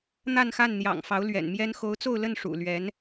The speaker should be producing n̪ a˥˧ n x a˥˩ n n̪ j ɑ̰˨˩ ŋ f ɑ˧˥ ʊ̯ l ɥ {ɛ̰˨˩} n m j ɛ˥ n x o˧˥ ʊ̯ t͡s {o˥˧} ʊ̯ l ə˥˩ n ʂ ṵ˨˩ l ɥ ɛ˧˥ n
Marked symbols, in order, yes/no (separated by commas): yes, yes